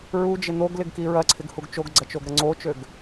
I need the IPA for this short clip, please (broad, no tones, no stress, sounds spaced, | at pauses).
ɹ u d͡ʒ ɪ n̪ o ɡ l ɪ ɡ k i ɹ ɐ ǀʰ ɪ ɡ h u ɡ t͡ʃ o ɡ ɡ͡ǀ ɐ t͡ʃ o ɡ ɾ ɐ ŋ͡ǀ o t͡ʃ ø ɡ